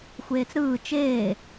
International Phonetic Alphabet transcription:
xʷeːt͡sɾɯː t͡ʃeː

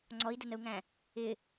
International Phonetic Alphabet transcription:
ŋ͡ǀɔi̯dənəu̯ŋæ̃ | ɪ

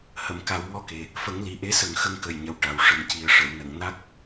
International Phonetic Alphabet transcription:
hə˨˩˨mka˨˩˦wŋɔ˧ke˨˩ | fə˨˩˦ŋli˨˩ʔe˧˥ sə˨˩˦ŋxə˧ŋkə˨˩j ɲə˨˩wʈa˨˩w ʂə˨˩mci˨˩ə̯ ʂə˨˩˨wnə˨˩˨ŋ na˦˥k̚

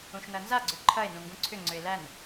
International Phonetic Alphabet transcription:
ũʃnɐnza ɡ͡ǀʏǃʰɐe̯ nũŋɡũǀʰʏ ŋ͡ǀʏe̯læn

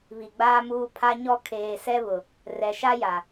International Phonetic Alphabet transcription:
βi˨ɡ͡baː˦muː˦ pʰa˦ɲɔ˦ kʰeː˨sɛ˦βʊ˨ | rɛ˨ʃa˦ja˨

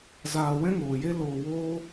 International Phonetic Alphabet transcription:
zaː˧ wɛ̃˦ŋoː˨je˦ loː˧woː˦

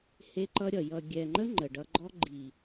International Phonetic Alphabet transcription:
he˦ǃʌ˦ɾʲʌ˨ jʌ˨ ɡʲɛ˨ŋ͡ǃə˦ ŋ͡ǃə˨ɖʌ˧ɡ͡ǃɔ˦ ɡ͡ǃi˨

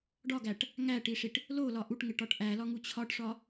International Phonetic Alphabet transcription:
ɖɒɡæʈ | ŋæʈiʂiʈ | lolɒ ʔuʈŋeʈɒʈ ʔælɒŋu t͡ɕʰɒʈʂɒ

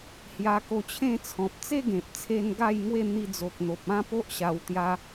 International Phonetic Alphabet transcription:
hja˧ko˧t͡ɕʰẽ˥˧t͡sʰɔ̃˨p̚ t͡se˦ɡẽ˨p̚t͡sʰe˧n ɡa˥˧jŋwe˥˧ n̪i˧d͡zo˨k̚n̪o˨p̚ ã˦po˦ʔ ɕa˧wt̪ja˦

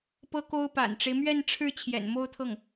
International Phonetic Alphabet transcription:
pɤ˥ko˥ʊ̯ pa̰˨˩nʈ͡ʂe˦ɪ̯mɥɛ˥˧n ʈ͡ʂʰɻ̩˥˩ t͡ɕʰjɛ̰˨˩n mo˥ʊ̯t̪ʰɤ˥˩ŋ

